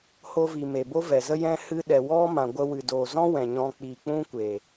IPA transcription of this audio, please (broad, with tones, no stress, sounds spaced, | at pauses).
h o˧ v i˨ m e˨ b o˦ v ɛ˨ z ə˦ j ɛ̃˦ h ɨ˦ ɗ ɛ˨ w ɔ˦ m ã˨ ɡʷ ə˧ w ɨ˨ d o˨ z ɔ̃˦ w ɛ̃˨ ɲ ɔ̃˧ k͡p i˨ k͡p ũ˦ kʷ e˨